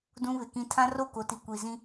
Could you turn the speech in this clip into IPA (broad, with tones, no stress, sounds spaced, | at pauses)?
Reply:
d ũ˦ β ɪ˨ k ĩ˦ tʰ ã˦ r o˦˨ k o˨ t i˨ kʷ i˨ z ĩ˦